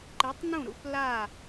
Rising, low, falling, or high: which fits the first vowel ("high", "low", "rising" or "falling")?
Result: rising